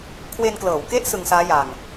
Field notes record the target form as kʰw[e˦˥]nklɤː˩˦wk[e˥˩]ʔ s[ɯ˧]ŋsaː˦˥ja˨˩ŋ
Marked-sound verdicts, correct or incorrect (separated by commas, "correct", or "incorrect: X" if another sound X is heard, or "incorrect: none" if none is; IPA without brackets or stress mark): incorrect: e˧, incorrect: e˦˥, correct